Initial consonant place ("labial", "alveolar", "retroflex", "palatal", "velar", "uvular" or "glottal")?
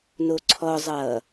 alveolar